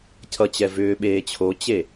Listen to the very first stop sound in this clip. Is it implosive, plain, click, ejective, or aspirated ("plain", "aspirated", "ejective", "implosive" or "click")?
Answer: aspirated